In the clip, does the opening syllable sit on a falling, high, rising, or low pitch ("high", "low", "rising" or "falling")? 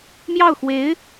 falling